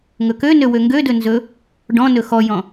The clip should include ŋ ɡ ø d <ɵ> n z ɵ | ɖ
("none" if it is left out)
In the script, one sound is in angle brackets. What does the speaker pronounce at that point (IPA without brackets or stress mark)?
ɵ